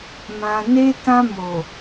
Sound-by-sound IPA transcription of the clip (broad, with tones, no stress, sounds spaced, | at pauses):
m ã˨ n e˧ t ã˧ m o˨